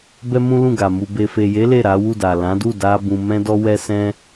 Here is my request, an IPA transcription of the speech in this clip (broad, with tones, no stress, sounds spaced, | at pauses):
b ɛ˦ m ũ˦ l ũ˦˨ ɡ a˨ m u˨ b e˨ f e˨ j e˨˦ l e˦˨ ɾ a˨˦ w u˦˨ d a˨ l ã˨˦ d u˦˨ d a˧ b ũ˧ m ɛ̃˦ d ɔ˦ w ɛ˦ s ɛ̃˦